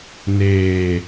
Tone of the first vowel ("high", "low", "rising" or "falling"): low